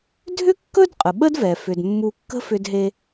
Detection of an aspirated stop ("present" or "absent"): absent